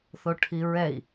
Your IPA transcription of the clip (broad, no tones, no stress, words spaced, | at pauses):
θoʈʰiɹɛi̯